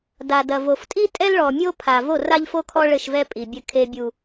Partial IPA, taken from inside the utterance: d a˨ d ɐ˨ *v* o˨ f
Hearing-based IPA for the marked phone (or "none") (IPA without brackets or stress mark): v